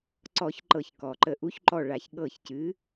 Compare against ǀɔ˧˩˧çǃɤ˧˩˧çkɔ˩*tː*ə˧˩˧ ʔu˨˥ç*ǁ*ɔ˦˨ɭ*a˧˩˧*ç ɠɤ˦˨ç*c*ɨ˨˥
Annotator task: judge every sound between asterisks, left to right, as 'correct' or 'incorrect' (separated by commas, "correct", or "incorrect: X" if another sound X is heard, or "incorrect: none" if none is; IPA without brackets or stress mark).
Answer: incorrect: ǃ, incorrect: ǃ, correct, correct